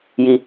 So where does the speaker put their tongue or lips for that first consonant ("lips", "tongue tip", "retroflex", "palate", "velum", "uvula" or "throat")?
palate